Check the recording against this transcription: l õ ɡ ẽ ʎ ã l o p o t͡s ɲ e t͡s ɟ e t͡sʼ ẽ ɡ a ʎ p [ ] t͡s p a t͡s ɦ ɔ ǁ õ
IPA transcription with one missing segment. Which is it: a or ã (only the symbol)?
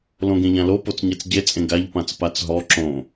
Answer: ã